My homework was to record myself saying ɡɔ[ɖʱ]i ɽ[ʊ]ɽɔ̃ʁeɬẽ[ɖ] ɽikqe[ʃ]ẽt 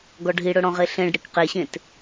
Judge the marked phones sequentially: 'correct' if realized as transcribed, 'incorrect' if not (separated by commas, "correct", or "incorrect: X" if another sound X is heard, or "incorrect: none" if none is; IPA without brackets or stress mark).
correct, correct, correct, incorrect: ɕ